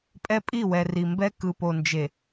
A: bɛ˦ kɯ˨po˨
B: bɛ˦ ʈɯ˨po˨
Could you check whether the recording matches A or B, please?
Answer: A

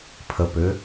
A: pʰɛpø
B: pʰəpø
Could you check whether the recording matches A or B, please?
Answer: B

